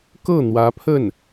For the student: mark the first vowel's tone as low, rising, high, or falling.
falling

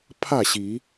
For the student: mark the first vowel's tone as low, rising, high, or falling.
falling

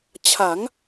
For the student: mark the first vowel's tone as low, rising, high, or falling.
rising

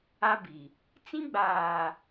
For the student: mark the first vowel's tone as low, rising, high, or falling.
high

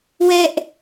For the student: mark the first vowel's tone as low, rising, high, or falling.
high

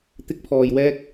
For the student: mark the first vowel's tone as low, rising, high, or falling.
high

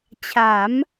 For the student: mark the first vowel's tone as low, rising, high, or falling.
rising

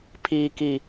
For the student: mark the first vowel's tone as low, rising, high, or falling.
low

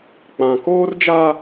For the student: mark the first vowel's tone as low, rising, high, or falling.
low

